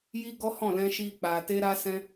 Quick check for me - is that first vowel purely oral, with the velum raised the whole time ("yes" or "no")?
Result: yes